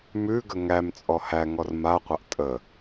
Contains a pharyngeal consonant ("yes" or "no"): no